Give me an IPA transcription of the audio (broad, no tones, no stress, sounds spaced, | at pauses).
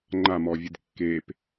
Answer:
ŋ͡ǃ a m ɔ vʲ ɨ d kː e p